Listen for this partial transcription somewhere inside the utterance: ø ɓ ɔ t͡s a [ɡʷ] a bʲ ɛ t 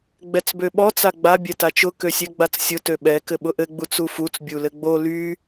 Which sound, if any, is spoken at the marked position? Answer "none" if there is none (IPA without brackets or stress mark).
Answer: ɡ͡b